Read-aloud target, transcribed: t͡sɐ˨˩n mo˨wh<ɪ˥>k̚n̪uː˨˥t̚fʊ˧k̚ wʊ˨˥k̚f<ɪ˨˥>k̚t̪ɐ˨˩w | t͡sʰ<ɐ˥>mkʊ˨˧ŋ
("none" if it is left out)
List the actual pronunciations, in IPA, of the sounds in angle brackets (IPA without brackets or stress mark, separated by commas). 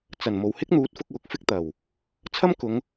ɪ˥, ɪ˥, ɐ˥